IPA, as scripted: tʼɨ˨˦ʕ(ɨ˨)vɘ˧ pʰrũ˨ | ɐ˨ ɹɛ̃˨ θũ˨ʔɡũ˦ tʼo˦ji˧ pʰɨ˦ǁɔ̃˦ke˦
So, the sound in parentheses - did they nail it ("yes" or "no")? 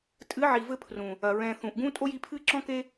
no